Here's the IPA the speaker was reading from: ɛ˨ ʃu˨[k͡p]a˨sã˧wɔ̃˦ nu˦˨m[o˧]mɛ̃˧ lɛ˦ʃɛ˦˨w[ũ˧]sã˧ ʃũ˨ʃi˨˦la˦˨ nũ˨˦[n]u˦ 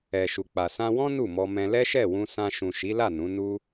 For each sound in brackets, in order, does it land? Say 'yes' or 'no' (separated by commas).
yes, no, yes, yes